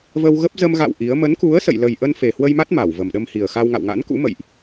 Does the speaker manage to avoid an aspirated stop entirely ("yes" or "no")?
yes